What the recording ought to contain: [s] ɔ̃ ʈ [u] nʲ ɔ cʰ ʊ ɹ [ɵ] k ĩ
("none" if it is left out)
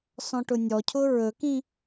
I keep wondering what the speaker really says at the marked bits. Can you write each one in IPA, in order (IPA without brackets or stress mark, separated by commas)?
s, ʊ, ɵ